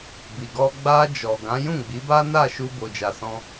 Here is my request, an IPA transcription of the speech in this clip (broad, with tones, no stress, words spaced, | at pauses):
bi˨ɡɔ˧ ɡ͡ba˧ d͡ʒɔ˨ɡã˨˦ jũ˦˨ɡ͡bi˨˦ba˦na˦˨ ʃu˧bo˨d͡ʒa˨sɔ̃˧